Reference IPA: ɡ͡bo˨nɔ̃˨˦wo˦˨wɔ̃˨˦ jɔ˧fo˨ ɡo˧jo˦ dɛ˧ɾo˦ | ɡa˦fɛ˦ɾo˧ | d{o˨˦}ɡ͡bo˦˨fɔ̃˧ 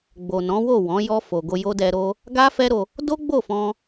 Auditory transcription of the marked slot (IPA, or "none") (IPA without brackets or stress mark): o˦